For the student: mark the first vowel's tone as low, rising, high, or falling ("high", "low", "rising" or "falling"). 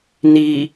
low